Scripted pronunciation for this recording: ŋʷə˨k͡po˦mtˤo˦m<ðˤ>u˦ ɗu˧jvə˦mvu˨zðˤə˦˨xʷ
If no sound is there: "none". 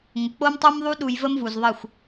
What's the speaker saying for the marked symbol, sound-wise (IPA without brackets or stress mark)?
ðˤ